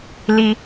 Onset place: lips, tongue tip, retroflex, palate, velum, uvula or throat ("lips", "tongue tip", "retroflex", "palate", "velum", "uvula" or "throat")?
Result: tongue tip